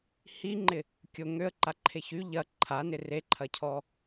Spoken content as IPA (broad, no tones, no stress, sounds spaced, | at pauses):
h i ŋ͡ǃ ɪ | kʲ ʊ ŋ ø ə̯ ǃ a ǃʰ e ç y ʎ ɐ ǃʰ a n ɪ r e ǃʰ ɐ cʰ ɔ